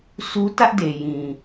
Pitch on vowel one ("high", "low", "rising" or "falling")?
high